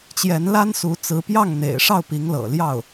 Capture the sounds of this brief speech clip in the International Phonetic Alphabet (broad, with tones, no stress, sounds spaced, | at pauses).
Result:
t͡ɕ j ɛ˧˥ n l a˥ n s u˧˥ t͡s ɹ̩˧˥ p j ɑ˥˩ ŋ n̪ ḛ˨˩ ɪ̯ ʂ ɑ˥˩ ʊ̯ p i˧˥ ŋ l ɤ̰˨˩ l j ɑ˥˩ ʊ̯